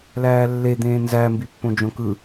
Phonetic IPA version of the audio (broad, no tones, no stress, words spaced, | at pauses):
læːlːed̪ẽː nzæmbipːõ d͡ʒõkɯ